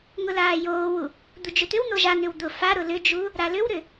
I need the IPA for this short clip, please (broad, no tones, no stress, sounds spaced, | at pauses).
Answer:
ŋ ʊ l aː j oː w u | d̪ u d͡ʒ ʏ t̪ ʏ w n̪ o ʒ a n̪ ʏ w d̪ ʊ f a ɾ ʊ l ʏ d͡ʒ u | ɾ a l ʏ w ɾ ʏ